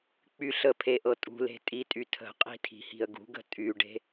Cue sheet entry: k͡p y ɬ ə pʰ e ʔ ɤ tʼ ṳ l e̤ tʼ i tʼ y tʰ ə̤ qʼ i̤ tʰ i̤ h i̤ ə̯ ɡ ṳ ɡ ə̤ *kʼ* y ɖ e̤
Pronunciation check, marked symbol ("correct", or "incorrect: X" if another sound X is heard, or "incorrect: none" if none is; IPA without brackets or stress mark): incorrect: tʼ